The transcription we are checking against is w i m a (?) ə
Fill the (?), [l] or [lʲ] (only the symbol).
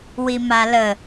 l